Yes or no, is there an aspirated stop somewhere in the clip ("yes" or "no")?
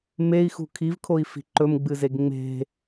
yes